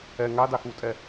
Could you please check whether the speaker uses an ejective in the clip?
yes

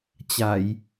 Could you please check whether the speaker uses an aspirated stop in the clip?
no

